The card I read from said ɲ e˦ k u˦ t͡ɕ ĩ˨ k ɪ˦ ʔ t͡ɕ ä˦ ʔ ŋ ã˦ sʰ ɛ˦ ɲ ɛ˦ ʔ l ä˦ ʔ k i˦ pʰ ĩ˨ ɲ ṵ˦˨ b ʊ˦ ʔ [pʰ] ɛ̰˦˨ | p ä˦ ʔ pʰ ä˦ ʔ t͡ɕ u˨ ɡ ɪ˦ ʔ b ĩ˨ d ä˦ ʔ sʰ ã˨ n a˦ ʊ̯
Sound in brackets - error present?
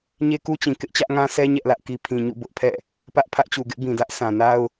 no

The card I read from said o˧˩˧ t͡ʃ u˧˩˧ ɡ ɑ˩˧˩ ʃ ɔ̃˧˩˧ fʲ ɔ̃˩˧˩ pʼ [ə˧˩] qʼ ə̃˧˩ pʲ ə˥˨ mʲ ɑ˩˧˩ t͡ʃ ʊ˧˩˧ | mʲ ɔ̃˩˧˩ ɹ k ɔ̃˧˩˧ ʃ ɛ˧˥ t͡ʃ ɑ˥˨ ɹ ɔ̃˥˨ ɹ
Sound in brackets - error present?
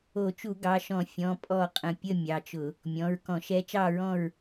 yes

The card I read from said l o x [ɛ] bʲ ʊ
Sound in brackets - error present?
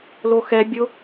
no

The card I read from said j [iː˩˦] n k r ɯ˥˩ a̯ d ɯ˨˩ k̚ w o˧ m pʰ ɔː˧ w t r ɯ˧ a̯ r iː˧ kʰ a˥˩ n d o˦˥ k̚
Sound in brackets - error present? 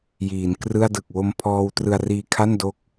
no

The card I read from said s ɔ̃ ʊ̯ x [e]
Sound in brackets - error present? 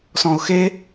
no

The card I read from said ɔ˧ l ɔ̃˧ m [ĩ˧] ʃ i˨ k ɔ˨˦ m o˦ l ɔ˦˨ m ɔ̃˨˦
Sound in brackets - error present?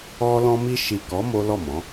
yes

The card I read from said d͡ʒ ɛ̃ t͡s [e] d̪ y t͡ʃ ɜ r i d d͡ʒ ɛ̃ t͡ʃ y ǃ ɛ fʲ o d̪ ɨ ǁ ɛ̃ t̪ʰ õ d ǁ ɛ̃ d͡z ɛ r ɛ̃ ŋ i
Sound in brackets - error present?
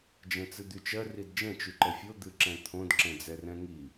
yes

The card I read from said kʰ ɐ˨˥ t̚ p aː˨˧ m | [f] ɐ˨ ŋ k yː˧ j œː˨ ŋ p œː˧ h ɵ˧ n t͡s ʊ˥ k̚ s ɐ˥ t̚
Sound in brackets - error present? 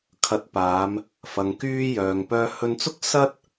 no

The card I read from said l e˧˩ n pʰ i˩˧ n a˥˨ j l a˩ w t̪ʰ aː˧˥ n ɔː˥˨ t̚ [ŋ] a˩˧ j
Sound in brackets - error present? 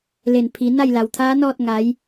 no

